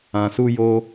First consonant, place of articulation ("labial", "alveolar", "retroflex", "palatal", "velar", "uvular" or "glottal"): alveolar